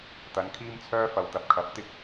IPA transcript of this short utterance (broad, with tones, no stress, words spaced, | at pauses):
t̪ɐ˨˧nkʰiː˥mt͡sʰœː˥fɐ˨w t̪ɐ˨p̚kʰɐ˨˥p̚t̪ɪ˥k̚